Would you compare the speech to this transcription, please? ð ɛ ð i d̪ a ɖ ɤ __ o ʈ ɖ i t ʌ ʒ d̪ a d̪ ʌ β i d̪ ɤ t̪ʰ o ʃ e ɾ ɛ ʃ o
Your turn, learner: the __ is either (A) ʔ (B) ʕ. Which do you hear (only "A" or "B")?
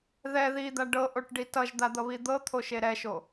A